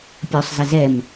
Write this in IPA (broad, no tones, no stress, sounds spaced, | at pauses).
pʲ ɵ sˤ z ɘ z ɛ m